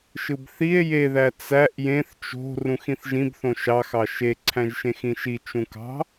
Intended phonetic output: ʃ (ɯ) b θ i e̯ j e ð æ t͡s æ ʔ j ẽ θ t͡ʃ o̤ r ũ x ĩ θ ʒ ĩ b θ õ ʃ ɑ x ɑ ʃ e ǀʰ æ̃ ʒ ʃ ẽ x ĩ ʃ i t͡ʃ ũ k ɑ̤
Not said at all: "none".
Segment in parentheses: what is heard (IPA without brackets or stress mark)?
ɯ